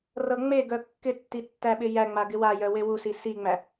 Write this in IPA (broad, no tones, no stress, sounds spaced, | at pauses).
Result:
r ɤ ŋ͡m e ɡ œ kː ɪ tː i tː æ ɓ ɪ j æ ŋ͡m a ɡ ɪ w a j œ w e w u s i s i ŋ͡m æ